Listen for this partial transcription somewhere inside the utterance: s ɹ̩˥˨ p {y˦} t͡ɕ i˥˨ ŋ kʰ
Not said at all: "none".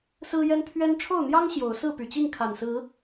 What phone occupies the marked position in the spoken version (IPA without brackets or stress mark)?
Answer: y˨˩